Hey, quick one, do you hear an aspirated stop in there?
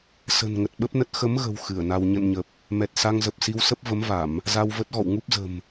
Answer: no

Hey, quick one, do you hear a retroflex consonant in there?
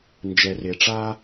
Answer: yes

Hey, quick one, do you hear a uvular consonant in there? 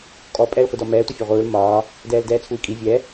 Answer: yes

